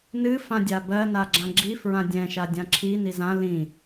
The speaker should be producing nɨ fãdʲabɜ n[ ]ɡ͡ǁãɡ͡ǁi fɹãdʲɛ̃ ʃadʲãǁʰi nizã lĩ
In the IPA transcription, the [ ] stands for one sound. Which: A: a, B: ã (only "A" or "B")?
A